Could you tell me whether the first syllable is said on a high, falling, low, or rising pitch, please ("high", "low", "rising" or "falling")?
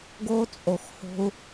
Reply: high